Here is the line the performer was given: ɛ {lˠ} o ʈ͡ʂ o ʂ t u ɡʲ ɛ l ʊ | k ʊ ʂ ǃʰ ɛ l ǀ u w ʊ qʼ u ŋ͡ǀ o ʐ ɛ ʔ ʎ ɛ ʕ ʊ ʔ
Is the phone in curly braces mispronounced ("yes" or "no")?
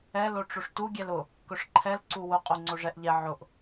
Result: yes